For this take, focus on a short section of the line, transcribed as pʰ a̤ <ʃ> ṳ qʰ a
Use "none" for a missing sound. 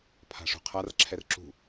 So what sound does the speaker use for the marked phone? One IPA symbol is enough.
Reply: ʂ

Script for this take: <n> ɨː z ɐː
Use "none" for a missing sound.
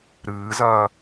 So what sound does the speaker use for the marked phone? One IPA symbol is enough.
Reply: ɾ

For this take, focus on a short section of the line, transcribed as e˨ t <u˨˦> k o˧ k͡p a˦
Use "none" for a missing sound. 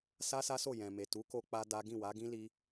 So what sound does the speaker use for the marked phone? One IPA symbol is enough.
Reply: u˨˦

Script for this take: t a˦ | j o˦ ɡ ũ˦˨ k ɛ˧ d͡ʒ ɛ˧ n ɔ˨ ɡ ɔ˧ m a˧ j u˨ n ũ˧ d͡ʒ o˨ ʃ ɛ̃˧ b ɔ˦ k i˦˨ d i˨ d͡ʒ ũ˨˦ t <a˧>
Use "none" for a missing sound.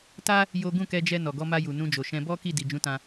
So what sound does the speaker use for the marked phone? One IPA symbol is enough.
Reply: ã˧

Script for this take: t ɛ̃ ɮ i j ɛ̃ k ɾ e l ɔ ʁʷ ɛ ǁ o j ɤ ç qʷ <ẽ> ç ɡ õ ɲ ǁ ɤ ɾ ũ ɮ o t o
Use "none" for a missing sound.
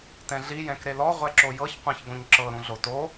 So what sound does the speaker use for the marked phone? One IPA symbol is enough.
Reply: ɛ̃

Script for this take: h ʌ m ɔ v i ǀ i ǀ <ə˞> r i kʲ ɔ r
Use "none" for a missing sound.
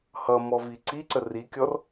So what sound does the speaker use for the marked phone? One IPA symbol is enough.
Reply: ə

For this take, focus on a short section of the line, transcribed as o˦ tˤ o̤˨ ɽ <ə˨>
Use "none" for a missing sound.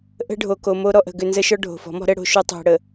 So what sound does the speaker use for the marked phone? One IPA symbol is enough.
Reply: ə˨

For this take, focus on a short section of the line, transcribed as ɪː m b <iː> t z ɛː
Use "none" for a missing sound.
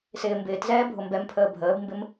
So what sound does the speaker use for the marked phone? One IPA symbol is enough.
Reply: ɪː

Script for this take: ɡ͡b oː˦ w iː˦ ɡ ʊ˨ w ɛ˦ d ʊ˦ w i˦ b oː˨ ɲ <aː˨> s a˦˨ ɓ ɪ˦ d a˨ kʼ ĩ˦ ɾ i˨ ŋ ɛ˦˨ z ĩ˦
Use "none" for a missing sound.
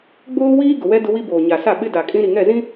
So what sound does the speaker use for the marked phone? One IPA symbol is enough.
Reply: a˨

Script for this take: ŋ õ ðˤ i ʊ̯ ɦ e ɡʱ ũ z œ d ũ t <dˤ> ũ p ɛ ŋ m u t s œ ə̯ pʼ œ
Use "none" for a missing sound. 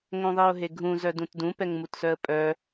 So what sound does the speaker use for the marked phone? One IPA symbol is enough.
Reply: d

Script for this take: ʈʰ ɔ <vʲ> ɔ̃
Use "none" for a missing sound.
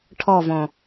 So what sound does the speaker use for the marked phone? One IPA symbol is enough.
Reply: v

